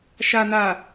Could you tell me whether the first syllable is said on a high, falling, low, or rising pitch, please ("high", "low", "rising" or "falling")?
low